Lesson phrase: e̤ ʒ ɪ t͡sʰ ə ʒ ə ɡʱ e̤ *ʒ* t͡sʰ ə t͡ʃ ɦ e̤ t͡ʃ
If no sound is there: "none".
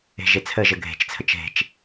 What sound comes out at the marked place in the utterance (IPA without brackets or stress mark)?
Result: t͡ʃ